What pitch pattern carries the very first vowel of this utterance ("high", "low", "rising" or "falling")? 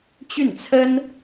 falling